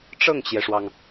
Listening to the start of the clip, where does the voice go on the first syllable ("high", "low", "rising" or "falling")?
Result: falling